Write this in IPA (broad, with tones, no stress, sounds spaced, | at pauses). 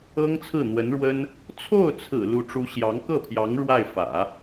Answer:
ɤ˥ ŋ t͡sʰ ɹ̩˥˩ n̪ w ə˧˥ n ɻ w ə˥ n | t͡sʰ o˥˩ ʊ̯ t͡sʰ ɹ̩˨˩ l u˧˥ ʈ͡ʂ u˧˥ ɕ j ɑ˧˥ ŋ k ɤ˥˩ pʰ j ɑ˧˥ ŋ ɻ w a˥˩ ɪ̯ f ä̰˨˩˦